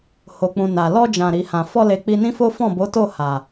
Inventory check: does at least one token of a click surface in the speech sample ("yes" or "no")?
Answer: no